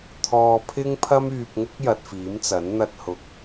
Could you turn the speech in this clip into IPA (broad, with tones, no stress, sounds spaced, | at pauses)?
t̪ʰ ɔː˧ pʰ ɪ˥ ŋ pʰ ɐ˥ m yː˧ p̚ ŋ ʊ˥ k̚ j ɐ˧ t̚ f iː˨˥ m t͡s ɐ˨˥ n n̪ ɐ˥ t̚ h ʊ˧ k̚